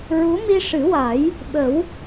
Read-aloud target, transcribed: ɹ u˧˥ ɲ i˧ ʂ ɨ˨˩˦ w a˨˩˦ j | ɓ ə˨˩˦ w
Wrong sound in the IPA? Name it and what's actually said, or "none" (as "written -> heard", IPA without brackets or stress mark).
ɲ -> m